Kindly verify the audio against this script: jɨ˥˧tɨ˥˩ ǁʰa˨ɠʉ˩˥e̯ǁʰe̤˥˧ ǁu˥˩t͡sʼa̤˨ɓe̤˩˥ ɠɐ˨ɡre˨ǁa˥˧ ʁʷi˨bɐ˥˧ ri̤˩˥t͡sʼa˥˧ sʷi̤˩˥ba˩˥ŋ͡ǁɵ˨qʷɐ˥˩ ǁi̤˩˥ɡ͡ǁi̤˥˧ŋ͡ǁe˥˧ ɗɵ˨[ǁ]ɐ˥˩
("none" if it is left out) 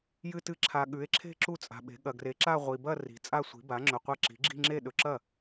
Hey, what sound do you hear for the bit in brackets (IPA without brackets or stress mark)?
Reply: ǁ